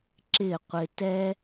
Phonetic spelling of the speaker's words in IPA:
ǁɪː˦˨qʷɪ˧ tɛ˦

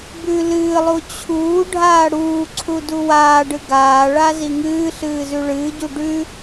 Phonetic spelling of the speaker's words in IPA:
bʉ lɨːlˠu t͡ɕʰuː ɖʱaːɽuːǀʰu duwaːɖɨ ɡaːɭa ziŋɨːɬɨː zʉɭɨːɟu ɖʉ

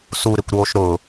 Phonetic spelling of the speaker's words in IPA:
suɾɪkʷɾoːʃ ɾʊ

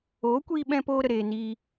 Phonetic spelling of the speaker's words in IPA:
oː˨˦kʷiː˧ɓɛ̃˧ poː˦ɾə˨ ɾeː˧ niː˧

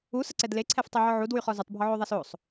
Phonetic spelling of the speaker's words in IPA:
usəǀɛd leǀʰɛftˤeʕɔ ʕudwyχɔ zutˤbʱɔʕoðˤas osˤ

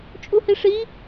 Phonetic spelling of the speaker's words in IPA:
t͡ʃʼuhiʂi

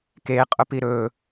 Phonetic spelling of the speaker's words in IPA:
keqʼʊpi ɾɵ

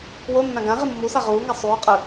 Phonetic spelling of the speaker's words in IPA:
wo nːãɡãʁi mːusa ʁuːŋa sˤuː qʼɯ

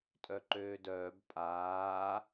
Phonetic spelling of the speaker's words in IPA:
tʼœǃøːdœːb pʼaː

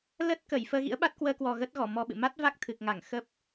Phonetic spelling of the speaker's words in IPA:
lə˦˥t̚ kəː˧˩jfəː˧ɣḭ˧˥ə̯ ɓa˦˥t̚kwəː˧kwɔ˨˩ ɣə˦˥t̚ɣɔ˧˩ mɔ˧ɓɨ̰˧˨ ma˦˥t̚va˦˥k̚ t̪ʰɨ˨˩k̚ŋa˧˩ŋ xə˦˥p̚

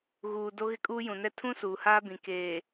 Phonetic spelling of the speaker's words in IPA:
ɣuː˨ do˦ ɣɪ˦kʼuː˦jũ˨nɛ˦ tʰũ˦ suː˨haː˦bĩ˨ keː˨

